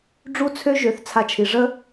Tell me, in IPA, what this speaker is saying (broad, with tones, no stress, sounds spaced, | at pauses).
ɖ͡ʐ u˦ t͡sʰ ø˦ ʒ ø˨˦ θ t͡sʰ a˧ t͡ʃʰ i˨ ʐ ə˦